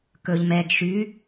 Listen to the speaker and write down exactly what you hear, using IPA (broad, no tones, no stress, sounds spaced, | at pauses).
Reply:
k ɵ ʎ m ɛ ɡ ʃ y